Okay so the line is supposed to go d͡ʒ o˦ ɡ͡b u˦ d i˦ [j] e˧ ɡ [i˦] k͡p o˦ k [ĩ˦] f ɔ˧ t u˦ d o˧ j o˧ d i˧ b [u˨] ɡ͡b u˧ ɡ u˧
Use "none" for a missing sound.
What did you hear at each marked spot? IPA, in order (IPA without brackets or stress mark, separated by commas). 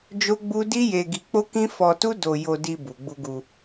j, i˧, ĩ˦, u˨